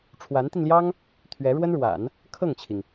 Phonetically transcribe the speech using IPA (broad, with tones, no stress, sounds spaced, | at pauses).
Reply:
ʈ͡ʂʰ w a˧˥ n t̪ i˧ n l j ɑ˥ ŋ | t̪ʰ ɥ ɛ˧˥ ɻ w ə˥ n ɻ w a̰˨˩˦ n | kʰ ɤ˥˩ ŋ t͡ɕʰ i˩ ŋ